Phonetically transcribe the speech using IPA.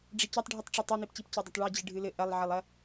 ɖ͡ʐ i c ɐ tˤ ɖʱ i tˤ ʈ͡ʂ i tˤ e n̪ i p c i p c ɘ dˤ ɐ tˤ ɭ ɛ d͡ʑ ɨ ɖʱ ɨ l ɘ ʔ ɐ lˠ ʕ ɐ lˠ ɐ

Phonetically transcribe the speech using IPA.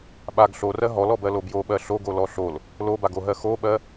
ɓ a ɡ ɬ o r ɜ ɦ ɔ l ɔ b ɜ l o b j o ɓ ɜ ɬ o ɡ o l ɔ ɬ o l | l o b a ɡ o ɦ ɜ x o ɓ ɜ

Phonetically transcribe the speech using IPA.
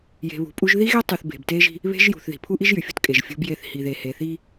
j e̤˨ β ṳ˨ pʼ u˦ ʒ ð i˦ ɣ e˦ tˤ y˨ θ b e̤˨ b t e˦ ʒ i̤˦ | β e̤˦ ʒ j ṳ˨ θ ð i̤˨ pʰ u˦ ʔ i˦ ʒ j y˨ fʲ ṳ˦ t kʼ e˨ ʒ fʲ ṳ˦ b j e˦˨ θ h i˨ ð e˨ h e˨ θ i˦

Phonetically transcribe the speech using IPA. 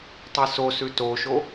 tˤ i s o s ʉ t o ʃ o

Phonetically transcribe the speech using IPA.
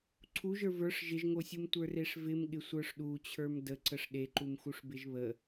ǀʰ u ʒ ə˞ v ə˞ ʂ ʒ ɪ ʒ ŋ o sʲ u m tʷ ə˞ r e ʂ v ɪ m ɠ ɪ sʷ ə˞ ʂ ɗ u t͡ɕʰ ə˞ m d ə ǀ ə ʂ ɗ e ǃ u m x u ʂ b ɪ ʒ β ə

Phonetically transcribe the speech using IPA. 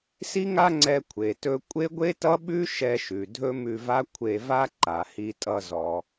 s i˥ ŋ a˥ ŋ͡ǀ ɛ˧ kʷʰ e˩ t ɵ˧ kʷʼ e˥ ɡʷ e˥ t ʌ˥ ɓ ʉ˥ ʃ ɛ˧ ʃ ʉ˩ dʱ ɵ˥ m ʉ˧ v a˥ kʷʰ e˧ v a˥ ǃ a˩ h i˧ tʼ ʌ˧ z ɔ˩

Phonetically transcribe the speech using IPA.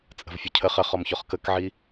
t͡sʼ ə̤ v fʲ ɵ cʰ ə χ ə χ ɔ m ç ɔ χ k ə k ʕ i

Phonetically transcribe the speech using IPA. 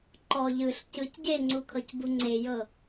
ǃ ɔ ʎ ɯ ɬ c ɯ c ɟ e ŋ͡ǀ u kʰ ɤ c b u ŋ͡ǀ e j ɤ

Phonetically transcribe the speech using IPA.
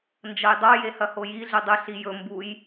n d͡ʒ ɐ j dˤ o j e h ɐ h o j i ɮ ʉ dˤ ʉ ɬ i j ɵ m b u j

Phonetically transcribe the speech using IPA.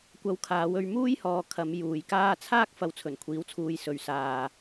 kʷ ɐ˧ w kʰ aː˨˧ w ɵ˧ ɥ m uː˥ j h ɔː˨ kʰ ɐ˨˧ m j uː˨˧ j k aː˥ t͡sʰ aː˥ k̚ f ɐ˨˧ w t͡sʰ ɵ˨˩ n kʷʰ iː˨˥ w t͡sʰ uː˨ j s ɵ˨˧ ɥ s aː˨

